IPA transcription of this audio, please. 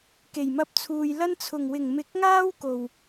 k e˨˩ j m ɐ˧ p̚ t͡sʰ uː˨ j l ɐ˥ n t͡sʰ ʊ˨˩ ŋ w ɪ˨˩ ŋ m ɪ˨˥ k̚ ŋ aː˥ w k o˨˩ w

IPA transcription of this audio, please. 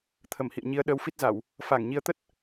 t̪ʰ ə˧˩ m h ḭ˧˨ ə̯ ɲ i˨˦ ə̯ ɗ əː˧ w f i˦˥ t̚ z a˧˩˨ w | f aː˧˩ ŋ ɲ i˨˦ ə̯ t̪ ə˦˥ t̚

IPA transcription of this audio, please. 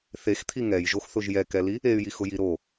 θ e x t̪ʰ i ŋ ɛ j ʒ o x θ ʊ ʒ j ɛ k ɛ l i | e y̯ j i x ʊ j i ɾ o

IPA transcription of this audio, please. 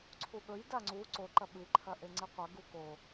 ǀʰ u ɠ ɵ j d a ŋ͡ǀ u ǀ o ǃ ɐ ɓ ɨ ǃʰ ɐ ʔ e ŋ͡ǀ i qʷ ɐ ɡ u k o

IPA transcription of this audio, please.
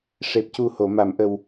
ʂ e˨˩ p̚ c u˨˩ h o˨˩˨ m a˨˩˨ m ʔ ə˨˩ w

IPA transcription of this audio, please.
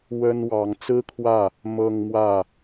w ə˥ n w ɑ˧˥ ŋ t͡s ɹ̩˥ kʰ w ä˥˩ | m ɤ˥˧ ŋ m w ä˥˩

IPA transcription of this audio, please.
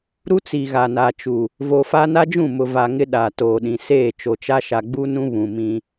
ɾ u˦ t͡s i˨ ɣ a˨ n a˨ t͡ʃ u˨ | v o˨ f a˦ n a˦ d͡ʒ ũ˦˨ m ʊ˨ v a˨ ŋ ɪ˦ ɗ a˨ t oː˨ ɗ ĩ˨ s eː˦˨ t͡ʃ o˨ t͡ʃ a˦ ʃ a˨ ɡ͡b u˦ n ũ˦ β ũ˨ m ĩ˦

